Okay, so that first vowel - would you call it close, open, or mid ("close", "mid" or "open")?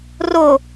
mid